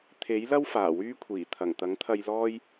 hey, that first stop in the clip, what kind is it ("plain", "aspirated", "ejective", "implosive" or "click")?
aspirated